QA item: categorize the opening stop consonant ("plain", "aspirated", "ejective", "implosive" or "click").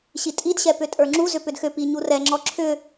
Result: ejective